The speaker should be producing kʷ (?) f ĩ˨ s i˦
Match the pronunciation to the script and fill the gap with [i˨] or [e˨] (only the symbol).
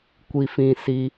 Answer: i˨